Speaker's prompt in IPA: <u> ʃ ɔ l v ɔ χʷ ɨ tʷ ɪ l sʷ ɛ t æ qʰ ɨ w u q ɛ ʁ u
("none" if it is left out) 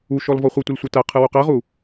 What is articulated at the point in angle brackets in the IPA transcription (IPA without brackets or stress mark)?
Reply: u